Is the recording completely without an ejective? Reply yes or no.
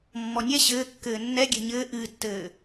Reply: yes